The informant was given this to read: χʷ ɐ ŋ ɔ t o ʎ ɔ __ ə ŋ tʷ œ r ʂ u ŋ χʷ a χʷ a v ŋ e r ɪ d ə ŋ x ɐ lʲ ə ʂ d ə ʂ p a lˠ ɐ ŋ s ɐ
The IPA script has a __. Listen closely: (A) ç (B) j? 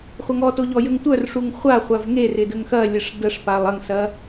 B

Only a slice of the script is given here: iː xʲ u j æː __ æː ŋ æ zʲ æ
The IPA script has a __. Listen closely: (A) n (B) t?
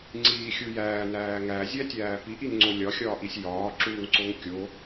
A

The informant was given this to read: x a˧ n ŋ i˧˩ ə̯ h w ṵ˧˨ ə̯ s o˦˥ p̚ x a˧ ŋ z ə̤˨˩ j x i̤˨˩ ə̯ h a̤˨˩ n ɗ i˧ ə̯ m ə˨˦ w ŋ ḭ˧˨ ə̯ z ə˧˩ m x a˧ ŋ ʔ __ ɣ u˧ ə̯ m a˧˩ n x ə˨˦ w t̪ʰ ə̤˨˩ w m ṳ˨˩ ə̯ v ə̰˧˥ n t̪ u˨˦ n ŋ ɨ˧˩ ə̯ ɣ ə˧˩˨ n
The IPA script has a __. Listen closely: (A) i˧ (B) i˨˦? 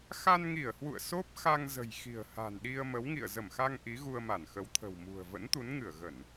B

